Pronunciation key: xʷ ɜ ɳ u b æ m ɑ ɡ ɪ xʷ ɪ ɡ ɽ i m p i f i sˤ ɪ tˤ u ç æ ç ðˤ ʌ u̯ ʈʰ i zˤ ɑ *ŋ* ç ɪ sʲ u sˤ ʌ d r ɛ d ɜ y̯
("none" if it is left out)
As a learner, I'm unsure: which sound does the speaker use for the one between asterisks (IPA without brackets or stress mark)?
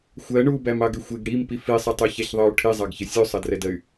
ɡ